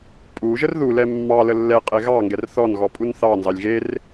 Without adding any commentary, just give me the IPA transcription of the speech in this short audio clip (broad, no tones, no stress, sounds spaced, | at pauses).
pʼ u ʒ ə r ð u l ɛ mː ɑ l ə lː ɛ qʼ e ɣ ɑ ŋ ɡ ɛ r θ ɔ n ɣ ɔ pʼ u n θ ɑ n z ɑ lʲ ɣ e r